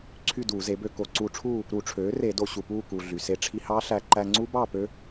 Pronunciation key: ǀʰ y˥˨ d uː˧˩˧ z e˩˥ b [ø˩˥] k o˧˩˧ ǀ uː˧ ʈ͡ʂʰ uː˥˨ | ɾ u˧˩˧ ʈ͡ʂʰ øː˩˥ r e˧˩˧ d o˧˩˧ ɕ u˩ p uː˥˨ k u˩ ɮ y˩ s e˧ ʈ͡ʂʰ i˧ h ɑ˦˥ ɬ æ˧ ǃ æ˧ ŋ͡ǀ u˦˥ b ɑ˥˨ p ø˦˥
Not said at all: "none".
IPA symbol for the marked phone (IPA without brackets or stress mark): ø˧